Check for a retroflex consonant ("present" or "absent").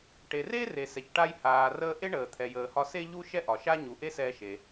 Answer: present